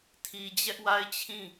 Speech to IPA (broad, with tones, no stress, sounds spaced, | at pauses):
tʰ i˨ d͡ʑ ɛ˦ ʔ w a˦ ɪ̯ t͡ɕʰ ĩ˦˨